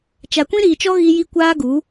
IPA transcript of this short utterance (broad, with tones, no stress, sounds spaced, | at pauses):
t͡ʃ a˨ kʷ ĩ˦ ɾ iː˨ t͡ʃ ɔ˦ ɣ i˦ j i˦ kʷ aː˦ ɡ u˨˦